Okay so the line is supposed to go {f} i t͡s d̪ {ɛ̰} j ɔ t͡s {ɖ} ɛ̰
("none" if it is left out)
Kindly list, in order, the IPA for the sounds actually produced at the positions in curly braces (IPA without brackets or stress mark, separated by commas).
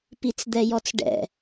p, ɛ, ɖ